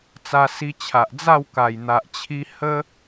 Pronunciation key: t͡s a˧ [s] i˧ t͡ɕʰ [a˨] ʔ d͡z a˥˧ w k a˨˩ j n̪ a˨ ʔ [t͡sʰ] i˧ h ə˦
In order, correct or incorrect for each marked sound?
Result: correct, correct, incorrect: t͡ɕʰ

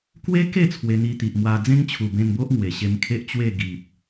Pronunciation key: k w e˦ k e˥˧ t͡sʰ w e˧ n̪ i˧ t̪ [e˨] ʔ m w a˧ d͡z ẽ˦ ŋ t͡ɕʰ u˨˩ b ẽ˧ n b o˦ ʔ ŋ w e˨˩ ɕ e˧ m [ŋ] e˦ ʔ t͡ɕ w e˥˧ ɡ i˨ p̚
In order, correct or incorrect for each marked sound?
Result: incorrect: i˨, incorrect: kʰ

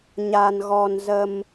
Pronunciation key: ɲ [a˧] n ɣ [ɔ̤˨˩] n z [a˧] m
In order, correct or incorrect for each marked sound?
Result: correct, incorrect: ɔ˧, incorrect: ə˧

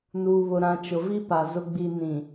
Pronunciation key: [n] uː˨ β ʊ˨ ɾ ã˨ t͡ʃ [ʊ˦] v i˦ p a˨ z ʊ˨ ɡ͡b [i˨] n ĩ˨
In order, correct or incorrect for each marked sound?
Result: correct, incorrect: ʊ˨, correct

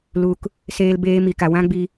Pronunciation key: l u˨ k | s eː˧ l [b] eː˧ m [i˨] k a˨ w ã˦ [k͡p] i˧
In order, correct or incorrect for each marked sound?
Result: correct, correct, incorrect: ɡ͡b

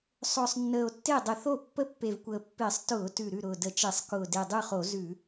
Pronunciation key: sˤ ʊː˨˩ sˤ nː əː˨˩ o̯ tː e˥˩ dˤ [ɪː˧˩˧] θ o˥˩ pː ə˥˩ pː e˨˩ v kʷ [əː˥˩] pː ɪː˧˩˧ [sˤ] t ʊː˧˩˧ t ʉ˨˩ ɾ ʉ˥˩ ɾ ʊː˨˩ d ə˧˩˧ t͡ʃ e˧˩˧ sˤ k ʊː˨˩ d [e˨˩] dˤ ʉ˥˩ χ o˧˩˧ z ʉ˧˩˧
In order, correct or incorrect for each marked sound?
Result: incorrect: ɪ˧˩˧, incorrect: əː˨˩, correct, correct

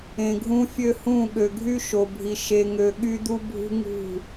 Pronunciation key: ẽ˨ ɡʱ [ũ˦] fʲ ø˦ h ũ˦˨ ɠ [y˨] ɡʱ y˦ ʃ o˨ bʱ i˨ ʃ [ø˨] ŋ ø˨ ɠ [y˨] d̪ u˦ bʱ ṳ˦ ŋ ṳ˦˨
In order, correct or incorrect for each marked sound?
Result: correct, incorrect: ø˨, incorrect: e˨, incorrect: y˦

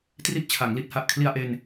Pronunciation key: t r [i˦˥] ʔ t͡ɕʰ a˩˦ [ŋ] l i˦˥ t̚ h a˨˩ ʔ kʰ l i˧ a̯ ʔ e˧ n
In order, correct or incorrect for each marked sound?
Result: correct, correct

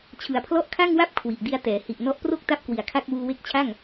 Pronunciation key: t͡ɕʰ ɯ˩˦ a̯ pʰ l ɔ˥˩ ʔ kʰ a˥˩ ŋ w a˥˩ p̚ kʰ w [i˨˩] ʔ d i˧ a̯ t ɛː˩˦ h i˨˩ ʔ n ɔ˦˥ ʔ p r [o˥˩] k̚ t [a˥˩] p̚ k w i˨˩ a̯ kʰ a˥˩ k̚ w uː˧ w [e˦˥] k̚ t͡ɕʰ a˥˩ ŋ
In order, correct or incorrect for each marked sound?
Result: correct, correct, correct, correct

